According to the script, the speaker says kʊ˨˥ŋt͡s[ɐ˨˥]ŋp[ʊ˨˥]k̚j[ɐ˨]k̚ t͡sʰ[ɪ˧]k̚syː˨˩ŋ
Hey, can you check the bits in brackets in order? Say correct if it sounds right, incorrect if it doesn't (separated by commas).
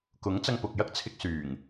incorrect, incorrect, incorrect, correct